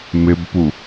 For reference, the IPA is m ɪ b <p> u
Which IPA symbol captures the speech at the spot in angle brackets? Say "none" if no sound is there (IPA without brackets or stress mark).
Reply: p